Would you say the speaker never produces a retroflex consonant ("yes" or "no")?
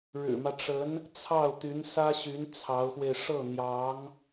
no